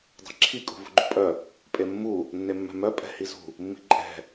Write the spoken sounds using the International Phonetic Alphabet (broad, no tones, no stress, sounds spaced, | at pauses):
dˤ e̤ ǁʰ i kʼ ṳ v ṳ ɡ͡ǃ ṳ pʼ œ | pʼ e mː u | nː e mː ɛ̤ m œ pʼ ɛ̤ h i z ṳ | mː i̤ ǃʼ ɛ̤